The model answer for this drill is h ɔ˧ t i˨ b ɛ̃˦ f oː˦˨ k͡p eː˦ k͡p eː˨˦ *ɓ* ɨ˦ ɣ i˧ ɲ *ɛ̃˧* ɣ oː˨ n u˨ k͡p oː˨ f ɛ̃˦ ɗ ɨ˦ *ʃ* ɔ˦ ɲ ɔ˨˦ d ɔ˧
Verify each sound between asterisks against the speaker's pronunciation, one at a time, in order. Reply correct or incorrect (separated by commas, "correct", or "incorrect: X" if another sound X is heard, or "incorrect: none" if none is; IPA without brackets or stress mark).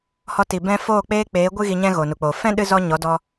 incorrect: ɡʷ, incorrect: ɛ̃˦, incorrect: z